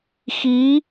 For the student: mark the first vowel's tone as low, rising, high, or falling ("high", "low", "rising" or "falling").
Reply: rising